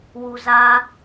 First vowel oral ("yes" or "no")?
yes